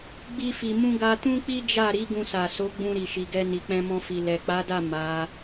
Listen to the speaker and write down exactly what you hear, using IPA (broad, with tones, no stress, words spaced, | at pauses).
ɡ͡bi˦fi˧mũ˦ ɡa˦ tũ˦k͡pi˦d͡ʒa˦˨ɾi˨˦ ɡũ˧sa˨so˨˦ɡ͡bũ˧ ɾi˨ʃi˨ɡɛ˧ ni˨k͡pɛ̃˧mɔ̃˧fi˨ lɛ˨k͡pa˨˦da˦˨ ma˨˦